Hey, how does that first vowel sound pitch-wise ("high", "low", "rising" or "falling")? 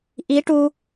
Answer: rising